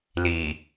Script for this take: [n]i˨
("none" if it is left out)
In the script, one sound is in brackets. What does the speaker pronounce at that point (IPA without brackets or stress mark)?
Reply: l